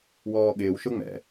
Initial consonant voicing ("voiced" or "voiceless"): voiced